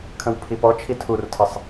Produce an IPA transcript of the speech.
kʰ ə̃ w pʰ i p ɔ t͡ʃʰ i tʰ u r tʰ ə sˤ

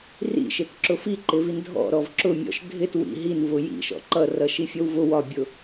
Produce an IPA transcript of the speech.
r ḭ ʃ ɪ t ǁ ʊ f i ǃ ɪ v i n dʱ ɔ̰ ɾ ɔ v ǁ ʊ mʲ ɔ̰ ʃ dʱ ɪ t w ḭ ɦ i n v ʊ j ḭ ʃ ɔ̰ ǃ ʌ r ʌ ʃ i fʲ ʌ w v ʊ w ɒ bʲ ʊ

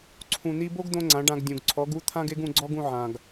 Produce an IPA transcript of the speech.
ǀʰ ũ˨ n̪ i˧ b o˦ ɡ d̪ õ˧ ŋ͡ǀ ã˨˦ ɖ ã˧ ɡ dʲ ũ˨ ɡ ǀʰ ɔ˨˦ ɡ u˦ t̪ʰ ã˦ ɡ e˦ ɡ ũ˧ ɡ͡ǀ ɔ˦ ɡ ũ˧ ʕ ã˨ ɡ

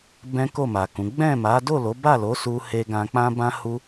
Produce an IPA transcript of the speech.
b ɛ̃˦ k o˦˨ m a˨ k ũ˨˦ ɡ͡b ɛ̃˦˨ m a˨˦ d o˦˨ l o˨˦ b a˦˨ l o˨˦ s u˧ h e˧ ɡ ã˧ k͡p ã˦ b ã˦ h u˦

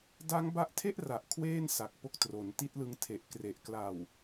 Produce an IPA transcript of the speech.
d a˦˥ ŋ b a˦˥ ʔ tʰ e˥˩ ʔ r a˨˩ ʔ kʰ w eː˥˩ n s a˨˩ k̚ p o˦˥ k̚ t r o˩˦ n t i˦˥ t̚ l ɯ˧ ŋ tʰ e˨˩ ʔ k r e˨˩ ʔ k l a˨˩ w

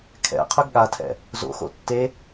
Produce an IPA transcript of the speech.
kʰ ɛ̰ qʰ ø ɡ ɠ a tʰ ɛ̰ | z o̰ x o̰ tː e

